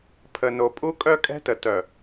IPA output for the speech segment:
pʰə˨no˨ pʼu˦kʼœ˦kʼɛ̤˦tə˨ tœ˨

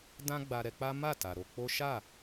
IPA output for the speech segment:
dã˦ɡ͡ba˧ɾɛ˧k͡pa˦ ma˦˨ta˨ ɾo˧k͡po˦ ʃa˦˨

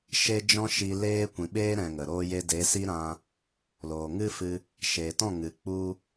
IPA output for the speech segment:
ʃe˦d͡ʒɔ̃˦ʃi˧ leː˦kʷĩ˨ ɓeː˦ɾɛ̃˨ ŋə˨ɾoː˦je˦ de˨˦si˦ɾã˧ | loː˨ŋɨ˦fɨ˧ | ʃe˨tɔ̃˦˨ŋɨ˨ k͡pu˦

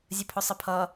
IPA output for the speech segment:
zʲəpʰʊsˤəpʰʌ

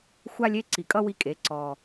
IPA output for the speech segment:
xʷa˥lʲe˧˥˧ǀi˨˩kʼʌ˥ wi˥kʼe˩˧ ǀɔ˨˩

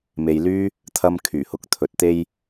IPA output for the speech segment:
me˨jlyː˥ | t̪ʰɐ˧m kʰyː˨˩hʊ˧k̚t̪ʰɵ˨t̚ t̪e˧j

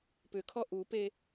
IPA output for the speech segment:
pʏkʰɔ ʔupe

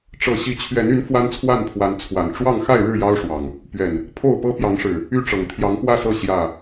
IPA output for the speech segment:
ʈ͡ʂɤ˨˩ ɕi˨˦t͡ɕʰɥɛ˨˦ny˨˦n fwa˦nt͡sʰwa˥˨npʰwa˨˦n t͡sʰwa˨˩n ʈ͡ʂwɑ˥˨ŋ xa˥˨ɪ̯ɻɻ̩˥˨ jɑ˦ʊ̯ʂwɑ˨˩ŋ | pɥɛ˨˩n | pʰo˥˨ʊ̯pɤ˦ pjɑ˨˦ŋʂɻ̩˨˩ | y˥˨ʈ͡ʂɤ˨˩ŋ t̪ʰjɑ˨˦ŋpwä˥˨sɤ˥˨ ɕjä˥˨

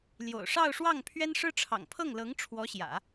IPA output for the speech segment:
ljo̰˨˩ʊ̯ʂɑ˥˧ʊ̯ʂwɑ˥˩ŋ pʰɥɛ˥nʂɻ̩˥ ʈ͡ʂʰɑ̰˨˩ŋpʰɤ˥˩ŋlɤ˧˥ŋ ʈ͡ʂʰwɔ˧˥ɕjä̰˨˩˦

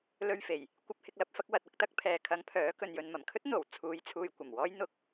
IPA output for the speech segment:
lɵ˧ɥfe˨˩j | kʷɐ˧p̚hɪ˧k̚lɐ˧p̚fɐ˨˥k̚ wɐ˨t̚ɐ˧k̚t̪ɐ˧k̚ pʰɛː˨kʰɐ˨˧ŋ pʰœː˨˥kɵ˨n jɵ˨nmɐ˨˩mkʰɵ˥t̚ n̪o˨˩w t͡sʰuː˨˧jt͡sʰuː˨j kʷɐ˨˩mwɔː˥j n̪ʊ˧k̚

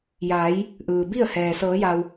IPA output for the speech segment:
jaː˩˧j | ʔɯː˩bi˥˨ə̯hɛː˩ sɤː˩˧ja˩w

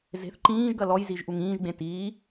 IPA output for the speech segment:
ze̤θ ǃĩːʒɡɐ lɔjziʒʔuŋ ĩːʒɡ͡bẽ tiː

